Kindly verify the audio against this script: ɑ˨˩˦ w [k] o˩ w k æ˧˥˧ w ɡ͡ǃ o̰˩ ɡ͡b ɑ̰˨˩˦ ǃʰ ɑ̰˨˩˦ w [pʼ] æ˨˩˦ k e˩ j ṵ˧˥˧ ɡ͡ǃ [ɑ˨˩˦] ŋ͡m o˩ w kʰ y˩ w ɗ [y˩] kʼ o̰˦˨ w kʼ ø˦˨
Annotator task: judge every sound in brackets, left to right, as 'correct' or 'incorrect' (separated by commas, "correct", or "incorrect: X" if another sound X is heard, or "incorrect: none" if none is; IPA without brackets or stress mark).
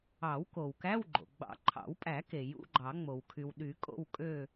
correct, correct, correct, incorrect: y˨˩˦